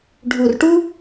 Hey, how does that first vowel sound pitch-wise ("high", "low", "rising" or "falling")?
low